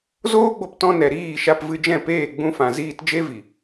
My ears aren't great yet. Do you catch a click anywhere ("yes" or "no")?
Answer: no